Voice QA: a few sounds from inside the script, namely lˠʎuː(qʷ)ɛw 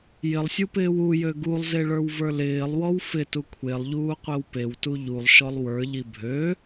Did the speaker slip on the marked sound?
no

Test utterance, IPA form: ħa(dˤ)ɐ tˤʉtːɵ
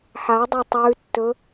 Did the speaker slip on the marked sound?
no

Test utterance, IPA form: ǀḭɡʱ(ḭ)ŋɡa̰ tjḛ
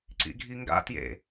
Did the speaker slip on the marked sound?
yes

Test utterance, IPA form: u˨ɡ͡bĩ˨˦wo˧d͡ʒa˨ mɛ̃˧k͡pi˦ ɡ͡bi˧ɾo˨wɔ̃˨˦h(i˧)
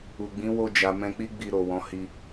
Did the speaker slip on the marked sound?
no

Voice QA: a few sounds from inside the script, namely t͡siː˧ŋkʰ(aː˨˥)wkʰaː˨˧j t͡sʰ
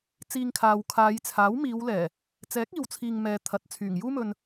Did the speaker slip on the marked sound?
yes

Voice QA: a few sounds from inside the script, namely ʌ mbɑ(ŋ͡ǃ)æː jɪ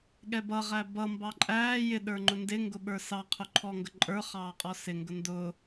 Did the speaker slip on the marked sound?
yes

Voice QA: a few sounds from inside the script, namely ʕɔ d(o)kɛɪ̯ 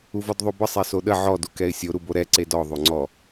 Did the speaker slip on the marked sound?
yes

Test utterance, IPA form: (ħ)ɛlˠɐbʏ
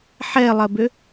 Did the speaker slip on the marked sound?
no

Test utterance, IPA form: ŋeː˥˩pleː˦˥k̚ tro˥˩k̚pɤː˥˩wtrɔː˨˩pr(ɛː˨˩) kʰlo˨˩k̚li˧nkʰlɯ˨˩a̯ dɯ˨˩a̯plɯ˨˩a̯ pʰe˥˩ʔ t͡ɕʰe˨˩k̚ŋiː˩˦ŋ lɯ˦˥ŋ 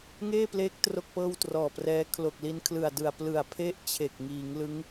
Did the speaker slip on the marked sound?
yes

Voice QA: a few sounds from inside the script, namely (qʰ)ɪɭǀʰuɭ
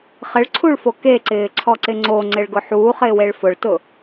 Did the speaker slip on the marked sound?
yes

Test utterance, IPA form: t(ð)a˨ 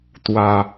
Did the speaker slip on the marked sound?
yes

